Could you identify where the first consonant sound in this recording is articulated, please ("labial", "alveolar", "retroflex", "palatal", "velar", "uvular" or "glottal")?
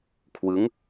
velar